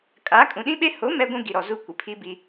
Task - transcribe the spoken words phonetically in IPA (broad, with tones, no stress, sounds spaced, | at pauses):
kʼ a˨˦ kʼ ũ˨ ɗ ĩ˦ ɓ e˦ h o˨˦ m ɛ˦ ɡʷ ũ˦ ɡ i˨ ɾ ɔ˨ z u˦˨ kʷ ɪ˨ pʰ i˦ b i˦